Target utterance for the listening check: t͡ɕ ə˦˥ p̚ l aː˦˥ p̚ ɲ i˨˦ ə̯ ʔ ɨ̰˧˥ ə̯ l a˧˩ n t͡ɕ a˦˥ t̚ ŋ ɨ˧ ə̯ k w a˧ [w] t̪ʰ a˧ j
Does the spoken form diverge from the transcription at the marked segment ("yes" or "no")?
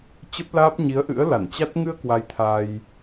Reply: yes